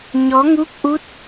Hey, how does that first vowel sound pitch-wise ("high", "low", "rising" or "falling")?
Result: rising